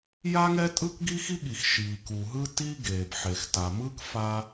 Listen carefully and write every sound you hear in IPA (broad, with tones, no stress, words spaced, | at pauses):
ja˥ŋɛ˥ tʼɯ˥kɡi˥xi˥ɠi˩x ʃiː˩ ku˩ɦɯ˥ ti˥ ɡeː˩bħe˩x ta˩mɯ˥k fa˥